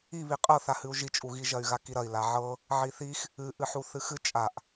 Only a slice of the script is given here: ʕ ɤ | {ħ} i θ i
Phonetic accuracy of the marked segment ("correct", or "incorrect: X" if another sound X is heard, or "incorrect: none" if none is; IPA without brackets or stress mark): incorrect: ʕ